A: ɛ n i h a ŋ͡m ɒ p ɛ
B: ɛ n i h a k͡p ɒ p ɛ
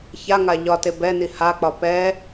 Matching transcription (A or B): B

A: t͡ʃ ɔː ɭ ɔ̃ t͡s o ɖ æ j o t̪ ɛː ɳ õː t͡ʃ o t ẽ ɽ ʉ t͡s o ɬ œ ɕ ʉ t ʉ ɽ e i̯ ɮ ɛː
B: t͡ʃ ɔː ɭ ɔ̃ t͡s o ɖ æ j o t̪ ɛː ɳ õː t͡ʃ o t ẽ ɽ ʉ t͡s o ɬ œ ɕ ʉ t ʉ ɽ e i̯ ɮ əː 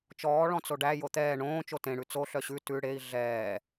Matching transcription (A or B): A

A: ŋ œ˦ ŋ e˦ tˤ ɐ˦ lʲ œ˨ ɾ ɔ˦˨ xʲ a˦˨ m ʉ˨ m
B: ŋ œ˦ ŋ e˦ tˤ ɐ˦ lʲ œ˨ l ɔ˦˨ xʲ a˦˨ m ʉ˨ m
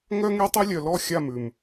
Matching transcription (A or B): B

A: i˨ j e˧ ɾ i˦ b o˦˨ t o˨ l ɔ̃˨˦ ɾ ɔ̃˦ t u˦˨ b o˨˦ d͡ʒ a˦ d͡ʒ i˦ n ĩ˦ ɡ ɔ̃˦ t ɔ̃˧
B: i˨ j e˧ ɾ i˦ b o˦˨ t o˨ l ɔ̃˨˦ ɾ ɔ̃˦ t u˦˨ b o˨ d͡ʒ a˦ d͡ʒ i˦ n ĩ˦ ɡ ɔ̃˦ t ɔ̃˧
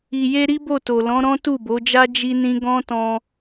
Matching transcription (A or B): A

